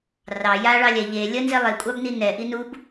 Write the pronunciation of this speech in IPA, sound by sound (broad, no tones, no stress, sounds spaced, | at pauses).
r ɑ j a ɭ ɑ lʲ ɛ ʎ e lʲ ə n z e lˠ e kʷʼ ɑ b n i n ɛ ʔ i n u b